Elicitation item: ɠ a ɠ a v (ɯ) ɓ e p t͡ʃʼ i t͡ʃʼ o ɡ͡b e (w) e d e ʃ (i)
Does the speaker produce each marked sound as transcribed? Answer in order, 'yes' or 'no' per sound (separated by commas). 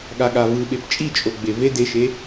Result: yes, no, no